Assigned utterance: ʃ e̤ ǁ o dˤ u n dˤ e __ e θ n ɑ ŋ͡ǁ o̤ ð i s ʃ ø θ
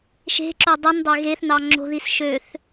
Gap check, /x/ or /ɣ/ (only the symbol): ɣ